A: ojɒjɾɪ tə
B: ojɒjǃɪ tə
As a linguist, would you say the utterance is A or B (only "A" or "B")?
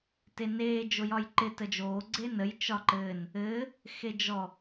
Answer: B